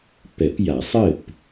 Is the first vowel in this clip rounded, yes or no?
no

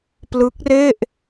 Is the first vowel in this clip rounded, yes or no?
no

